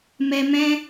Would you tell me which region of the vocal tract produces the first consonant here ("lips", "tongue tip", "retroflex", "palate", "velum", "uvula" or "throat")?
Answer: lips